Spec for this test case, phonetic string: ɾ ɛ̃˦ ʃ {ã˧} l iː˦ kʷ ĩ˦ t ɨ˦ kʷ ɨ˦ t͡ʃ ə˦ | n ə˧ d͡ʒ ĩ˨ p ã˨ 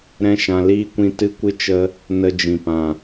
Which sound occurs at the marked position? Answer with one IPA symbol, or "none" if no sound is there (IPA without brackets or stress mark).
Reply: ã˧